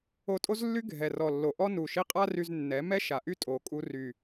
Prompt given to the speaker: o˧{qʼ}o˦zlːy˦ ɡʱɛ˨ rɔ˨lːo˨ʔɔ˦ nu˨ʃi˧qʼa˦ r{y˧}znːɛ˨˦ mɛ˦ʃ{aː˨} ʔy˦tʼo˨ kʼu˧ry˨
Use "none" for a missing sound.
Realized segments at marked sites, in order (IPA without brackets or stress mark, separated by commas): tʼ, y˧, a˨